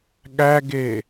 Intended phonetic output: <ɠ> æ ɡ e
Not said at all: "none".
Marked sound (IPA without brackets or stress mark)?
ɠ